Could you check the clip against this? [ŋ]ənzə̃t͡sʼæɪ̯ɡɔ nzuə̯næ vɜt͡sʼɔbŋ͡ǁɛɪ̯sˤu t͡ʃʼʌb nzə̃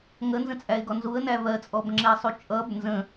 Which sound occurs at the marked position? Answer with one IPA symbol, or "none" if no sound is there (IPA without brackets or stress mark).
ŋ